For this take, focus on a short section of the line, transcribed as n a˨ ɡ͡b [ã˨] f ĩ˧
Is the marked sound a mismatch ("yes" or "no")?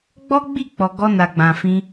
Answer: no